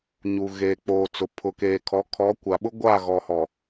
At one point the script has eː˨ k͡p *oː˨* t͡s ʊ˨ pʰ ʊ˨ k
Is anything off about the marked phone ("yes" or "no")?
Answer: no